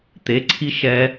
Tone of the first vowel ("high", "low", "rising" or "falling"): rising